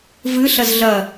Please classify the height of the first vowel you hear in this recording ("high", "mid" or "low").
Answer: high